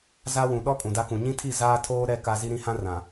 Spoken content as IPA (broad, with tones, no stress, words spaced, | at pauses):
za˦wũ˨ ɗɔ˦ kʼũ˨da˦kũ˨ ɲĩ˦tʰi˦˨ zaː˦tʰoː˦ ɾɛ˦ ka˦ zi˦ɾĩ˦ hã˦rã˨